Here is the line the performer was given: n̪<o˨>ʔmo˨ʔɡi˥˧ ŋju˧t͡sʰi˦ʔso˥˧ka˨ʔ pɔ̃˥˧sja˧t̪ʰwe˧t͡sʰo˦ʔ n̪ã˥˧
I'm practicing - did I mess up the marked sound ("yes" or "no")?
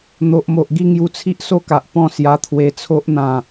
no